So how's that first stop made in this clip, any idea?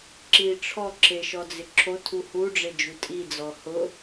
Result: click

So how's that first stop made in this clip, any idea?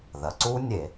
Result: click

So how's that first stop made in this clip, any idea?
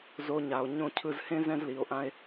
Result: aspirated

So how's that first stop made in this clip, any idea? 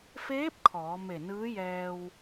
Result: plain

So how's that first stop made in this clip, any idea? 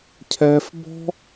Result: aspirated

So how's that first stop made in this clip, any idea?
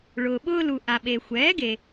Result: implosive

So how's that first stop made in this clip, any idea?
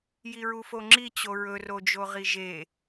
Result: click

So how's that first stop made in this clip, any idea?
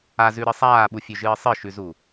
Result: implosive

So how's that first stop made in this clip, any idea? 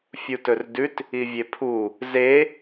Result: plain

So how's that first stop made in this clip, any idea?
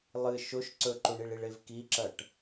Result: click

